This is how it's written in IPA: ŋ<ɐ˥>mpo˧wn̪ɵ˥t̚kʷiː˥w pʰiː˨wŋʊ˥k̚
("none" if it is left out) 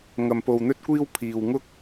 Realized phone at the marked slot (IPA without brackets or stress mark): ɐ˧